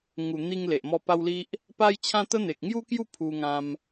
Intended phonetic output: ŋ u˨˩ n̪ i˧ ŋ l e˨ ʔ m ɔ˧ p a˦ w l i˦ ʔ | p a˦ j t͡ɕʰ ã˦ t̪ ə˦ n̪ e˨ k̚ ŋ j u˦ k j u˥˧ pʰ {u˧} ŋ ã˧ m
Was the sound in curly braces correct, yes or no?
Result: yes